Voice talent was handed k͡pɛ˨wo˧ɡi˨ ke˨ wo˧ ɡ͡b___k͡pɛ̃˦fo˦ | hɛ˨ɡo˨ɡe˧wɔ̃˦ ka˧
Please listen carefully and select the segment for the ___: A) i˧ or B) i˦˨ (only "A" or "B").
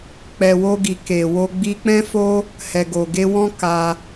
A